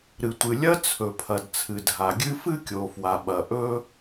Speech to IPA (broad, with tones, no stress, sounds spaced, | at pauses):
ɾ ɨ˩ tʷ ɨ˩ lʲ ɐ˥ t͡sʰ ɵ˩ pʰ ɐ˩ d t͡sʰ ɨ˩ dʱ a˩ ɡʲ ɨ˥ f ɨ˥ kʲ o˩ f w a˩ ɓ ɐ˩ ʔ ɵ˥